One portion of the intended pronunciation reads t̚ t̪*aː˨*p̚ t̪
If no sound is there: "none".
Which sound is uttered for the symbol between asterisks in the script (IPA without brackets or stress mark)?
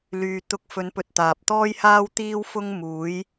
aː˨